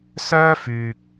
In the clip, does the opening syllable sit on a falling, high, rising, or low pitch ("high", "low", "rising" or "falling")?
high